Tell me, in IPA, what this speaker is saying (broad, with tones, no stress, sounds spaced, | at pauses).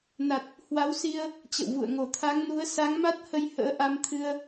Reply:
n a˨˩ t̚ | h w a˨˦ w s i˧ ə̯ | t͡ɕ ə̰˧˨ w v ṵ˧˨ ə̯ ŋ o˧˩ t̪ʰ a˨˦ ŋ n u˨˦ ə̯ s a˨˦ ŋ m a˦˥ t̚ h ə˧ j h ə̰ː˧˥ ʔ a˧ m t̪ʰ ɨ˧ ə̯